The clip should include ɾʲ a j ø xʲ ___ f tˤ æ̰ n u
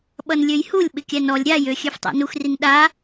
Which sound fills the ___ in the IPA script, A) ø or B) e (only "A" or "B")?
A